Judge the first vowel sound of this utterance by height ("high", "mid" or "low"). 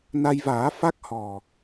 low